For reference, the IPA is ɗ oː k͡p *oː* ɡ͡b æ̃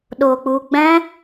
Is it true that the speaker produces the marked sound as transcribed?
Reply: no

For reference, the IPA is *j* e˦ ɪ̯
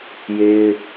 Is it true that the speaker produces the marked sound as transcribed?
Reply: yes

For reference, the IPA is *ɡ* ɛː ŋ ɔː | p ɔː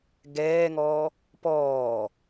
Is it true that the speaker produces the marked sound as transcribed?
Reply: yes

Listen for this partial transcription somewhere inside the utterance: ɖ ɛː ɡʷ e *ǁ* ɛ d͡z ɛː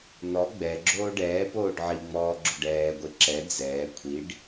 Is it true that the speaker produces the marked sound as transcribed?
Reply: yes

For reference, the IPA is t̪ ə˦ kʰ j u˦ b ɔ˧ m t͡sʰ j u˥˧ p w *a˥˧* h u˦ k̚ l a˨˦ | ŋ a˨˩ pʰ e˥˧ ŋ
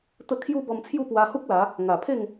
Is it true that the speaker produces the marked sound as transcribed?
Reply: no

